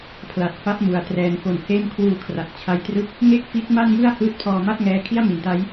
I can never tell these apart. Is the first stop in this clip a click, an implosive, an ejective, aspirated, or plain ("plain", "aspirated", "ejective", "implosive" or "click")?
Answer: aspirated